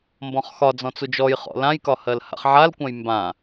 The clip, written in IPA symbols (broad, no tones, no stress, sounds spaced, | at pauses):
m b ɔ̃ χ x ɒ d͡z ɔ̃ t͡s u d͡ʒ ɔ j χ ɔ̰ l ã j k ɒ h ɜ l h a̰ χ ʕ a l kʷ ã j m b ã